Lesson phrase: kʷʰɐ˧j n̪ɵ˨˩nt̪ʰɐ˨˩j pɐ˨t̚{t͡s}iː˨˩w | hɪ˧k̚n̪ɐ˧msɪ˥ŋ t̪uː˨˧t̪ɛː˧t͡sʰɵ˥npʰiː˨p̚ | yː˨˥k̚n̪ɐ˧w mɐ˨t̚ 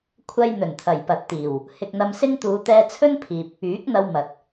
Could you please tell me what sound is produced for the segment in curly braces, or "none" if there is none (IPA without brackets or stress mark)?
t̪